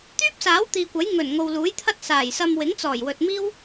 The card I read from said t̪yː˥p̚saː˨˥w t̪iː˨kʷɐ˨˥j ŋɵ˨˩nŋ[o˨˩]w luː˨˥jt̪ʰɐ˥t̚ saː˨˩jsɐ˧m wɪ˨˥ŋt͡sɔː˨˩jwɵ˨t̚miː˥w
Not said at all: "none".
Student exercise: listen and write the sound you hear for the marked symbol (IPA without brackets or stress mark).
o˨